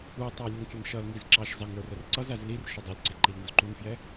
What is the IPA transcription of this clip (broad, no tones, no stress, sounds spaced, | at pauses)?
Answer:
u tˤ æ lʲ ʊ ŋ kʲ ə n ʃ ʌ l ŋ i z ǁ ɑ ʃ z ɑ ŋ ə˞ r ə r ǀ ʌ z æ z l i r ʃ ʊ dˤ ʊ l ǀ ɪ ǃ i l ŋ ʊ z ǃ u n f j ɛ